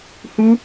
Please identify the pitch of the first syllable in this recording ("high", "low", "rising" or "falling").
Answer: high